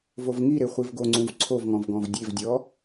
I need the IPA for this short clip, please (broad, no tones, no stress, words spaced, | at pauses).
vovŋiɾe χʷivɡoŋ͡ǀũv ǀʰovŋɔ̃v ɡɔ̃vdʲevdʲɔ